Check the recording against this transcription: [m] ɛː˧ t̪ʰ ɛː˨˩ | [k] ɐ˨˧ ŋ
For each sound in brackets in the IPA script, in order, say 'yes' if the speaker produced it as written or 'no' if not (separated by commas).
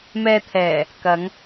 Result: yes, yes